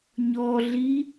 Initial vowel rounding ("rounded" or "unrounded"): rounded